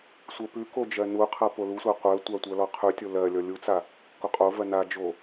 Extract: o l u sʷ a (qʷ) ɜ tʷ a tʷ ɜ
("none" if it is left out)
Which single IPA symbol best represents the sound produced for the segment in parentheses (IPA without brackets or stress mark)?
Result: qʷ